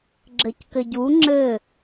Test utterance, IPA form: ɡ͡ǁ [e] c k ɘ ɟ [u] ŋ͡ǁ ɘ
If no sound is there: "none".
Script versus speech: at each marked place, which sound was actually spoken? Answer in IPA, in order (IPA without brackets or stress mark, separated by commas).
ɘ, u